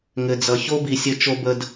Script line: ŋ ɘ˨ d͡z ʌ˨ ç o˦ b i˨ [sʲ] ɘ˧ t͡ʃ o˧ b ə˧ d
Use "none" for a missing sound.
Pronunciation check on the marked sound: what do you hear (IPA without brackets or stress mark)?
sʲ